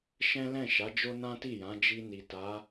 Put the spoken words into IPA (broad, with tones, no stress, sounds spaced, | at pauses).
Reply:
ʃ ɛ̃˦ l ɛ̃˦˨ ʃ a˨˦ d͡ʒ o˦ n ã˦ t i˦˨ j ã˨˦ d͡ʒ i˧ n i˨ t a˨˦